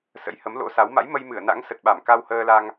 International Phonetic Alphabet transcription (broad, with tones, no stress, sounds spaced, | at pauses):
s ə̰˧˥ j h ə˨˦ m l o̰˧˥ s a˨˦ w m a̰˧˥ j m ə˧ j m ɨ˧˩ ə̯ n a̰˧˥ ŋ s ə˨˩ t̚ ɓ a˧˩ m k a˧ w h əː˧ l a˧ ŋ